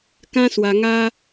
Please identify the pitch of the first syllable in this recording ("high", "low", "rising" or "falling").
high